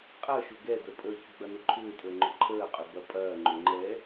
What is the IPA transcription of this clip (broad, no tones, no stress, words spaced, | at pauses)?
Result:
qʼɐ ʃʊɡɛdə pʼəçʏ ɡ͡bɐnʊǃʰʏːtʼəː ŋ͡ǃʊǃʰəːqʼʏ bɐpʼɐːŋ͡ǃʏ ŋ͡ǃɛ